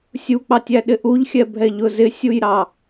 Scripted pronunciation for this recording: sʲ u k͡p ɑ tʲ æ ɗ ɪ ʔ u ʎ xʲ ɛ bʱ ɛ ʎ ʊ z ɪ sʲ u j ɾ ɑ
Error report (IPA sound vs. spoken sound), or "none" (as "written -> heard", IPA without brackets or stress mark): none